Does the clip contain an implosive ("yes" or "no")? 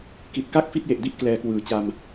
no